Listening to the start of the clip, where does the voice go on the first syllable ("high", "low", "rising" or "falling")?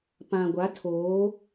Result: low